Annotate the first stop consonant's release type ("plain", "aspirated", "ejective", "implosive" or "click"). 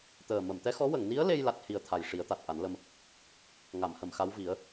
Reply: plain